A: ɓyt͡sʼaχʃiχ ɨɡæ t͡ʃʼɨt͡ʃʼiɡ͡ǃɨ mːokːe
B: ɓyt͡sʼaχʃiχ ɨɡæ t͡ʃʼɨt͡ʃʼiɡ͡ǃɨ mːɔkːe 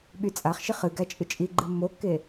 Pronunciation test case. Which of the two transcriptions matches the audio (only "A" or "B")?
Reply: A